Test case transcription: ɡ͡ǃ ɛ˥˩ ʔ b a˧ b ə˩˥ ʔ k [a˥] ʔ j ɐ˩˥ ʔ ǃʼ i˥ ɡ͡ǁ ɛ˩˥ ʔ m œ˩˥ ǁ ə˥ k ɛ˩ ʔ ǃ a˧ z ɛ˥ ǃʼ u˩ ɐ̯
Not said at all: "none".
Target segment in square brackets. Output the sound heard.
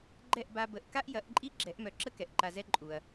a˥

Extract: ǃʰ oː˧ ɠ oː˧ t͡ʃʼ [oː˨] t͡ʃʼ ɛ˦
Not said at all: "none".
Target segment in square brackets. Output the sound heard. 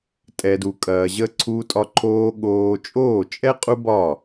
oː˦˨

